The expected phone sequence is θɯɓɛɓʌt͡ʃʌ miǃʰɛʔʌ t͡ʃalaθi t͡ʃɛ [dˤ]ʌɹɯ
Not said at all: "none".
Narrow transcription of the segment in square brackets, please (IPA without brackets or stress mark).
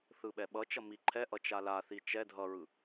dʱ